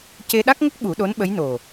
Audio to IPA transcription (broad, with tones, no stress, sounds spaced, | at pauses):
c e˧ ɗ a˦˥ k̚ ŋ ə˦˥ k̚ ɓ u˨˩˦ ɗ o˧˥ n ɓ ə˧˥ j n o˨˩